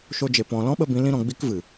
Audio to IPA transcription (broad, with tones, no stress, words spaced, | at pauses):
ʃo˧d͡ʒe˨ pɔ̃˧ lɔ̃˦ɓə˧bĩ˨˦ lĩ˦ɾɔ̃˧ɡ͡bi˦k vɨ˨